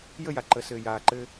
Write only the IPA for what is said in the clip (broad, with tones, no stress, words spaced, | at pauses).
jə˦˨ja˨ ǃə˨sɘː˨ jaː˨ǃɘː˦